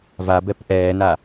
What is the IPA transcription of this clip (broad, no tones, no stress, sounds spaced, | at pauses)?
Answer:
v a b ɛ p ʔ ɛː n a